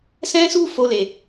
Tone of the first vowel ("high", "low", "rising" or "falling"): high